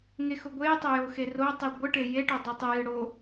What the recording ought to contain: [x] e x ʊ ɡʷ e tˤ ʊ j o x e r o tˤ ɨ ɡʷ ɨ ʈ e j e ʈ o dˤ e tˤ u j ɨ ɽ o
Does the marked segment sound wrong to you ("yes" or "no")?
yes